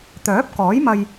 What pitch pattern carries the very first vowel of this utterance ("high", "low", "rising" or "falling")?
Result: rising